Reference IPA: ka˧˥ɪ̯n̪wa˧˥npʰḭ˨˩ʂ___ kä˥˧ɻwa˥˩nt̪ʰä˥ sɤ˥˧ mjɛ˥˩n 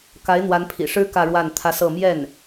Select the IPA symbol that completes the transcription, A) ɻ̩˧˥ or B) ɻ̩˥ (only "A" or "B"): B